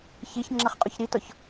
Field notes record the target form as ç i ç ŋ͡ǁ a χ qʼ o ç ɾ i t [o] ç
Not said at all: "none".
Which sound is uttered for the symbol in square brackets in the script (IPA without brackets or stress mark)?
ɔ